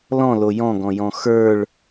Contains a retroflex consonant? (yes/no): yes